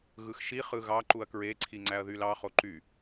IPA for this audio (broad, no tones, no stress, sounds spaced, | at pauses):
ɣ ɯ x ʃ i χ ɯ ɣ ɑ ǃ u ɐ̯ k ɹ e ǀʰ i ŋ͡ǀ æ ɐ̯ ð y l ɑ χ o ǃ y